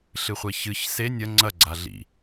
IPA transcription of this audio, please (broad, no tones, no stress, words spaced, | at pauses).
ɬɨχʷeçɨç se nʲɐ ŋ͡ǀɐ ɡ͡ǀaɮḭ